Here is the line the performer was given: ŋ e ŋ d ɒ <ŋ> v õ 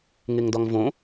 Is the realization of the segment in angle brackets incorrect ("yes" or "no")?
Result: no